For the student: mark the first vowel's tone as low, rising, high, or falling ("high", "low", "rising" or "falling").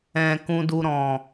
low